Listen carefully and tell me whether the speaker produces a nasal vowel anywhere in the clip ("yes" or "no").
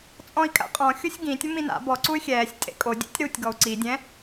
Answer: yes